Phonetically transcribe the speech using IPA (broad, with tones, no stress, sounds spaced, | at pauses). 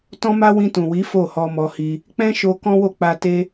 t ɔ̃˦ m a˦ w ĩ˧ t ũ˨ w i˨˦ f o˦˨ h ɔ˧ m ɔ˧ h i˧ | k͡p ɛ̃˦ ʃ o˧ k ɔ̃˦ w o˦˨ k͡p a˧ t e˦